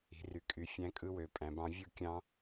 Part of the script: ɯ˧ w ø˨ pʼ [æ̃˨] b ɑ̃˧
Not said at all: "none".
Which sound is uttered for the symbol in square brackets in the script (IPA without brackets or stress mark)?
æ̃˨